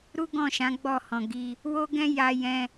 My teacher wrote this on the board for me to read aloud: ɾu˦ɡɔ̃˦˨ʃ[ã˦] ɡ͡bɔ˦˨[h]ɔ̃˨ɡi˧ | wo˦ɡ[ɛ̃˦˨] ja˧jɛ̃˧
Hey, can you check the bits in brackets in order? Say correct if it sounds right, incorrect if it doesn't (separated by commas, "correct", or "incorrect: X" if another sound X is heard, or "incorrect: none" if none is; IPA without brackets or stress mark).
incorrect: ã˨˦, correct, incorrect: ɛ̃˦